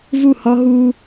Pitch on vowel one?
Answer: falling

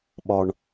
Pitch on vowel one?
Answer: high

